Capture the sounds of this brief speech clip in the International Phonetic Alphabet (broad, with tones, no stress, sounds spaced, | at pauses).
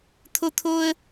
t̪ʰ o˦ t̪ʰ o˦ ə̯